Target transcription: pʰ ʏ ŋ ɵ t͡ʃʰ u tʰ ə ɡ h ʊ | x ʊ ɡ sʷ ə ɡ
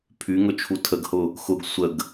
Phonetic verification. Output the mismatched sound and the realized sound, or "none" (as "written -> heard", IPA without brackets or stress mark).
ʏ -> y